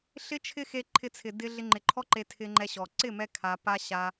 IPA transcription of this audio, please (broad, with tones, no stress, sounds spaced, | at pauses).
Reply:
ɬ ɪ˦ t͡ʃʰ ɪ˦ x e˧ ǃʰ ɪ˧ t͡sʰ ɪ˨ d ɪ˧ ɮ ɪ˧ ŋ͡ǃ ɪ˨ ǃʰ ɔ˦ ǃ e˧ tʰ ɪ˧ ŋ͡ǃ ɛ˧ ɕ ɔ˨ ǀ ɪ˦˨ m ɛ˧ kʰ a˧ p a˦ ɕ a˧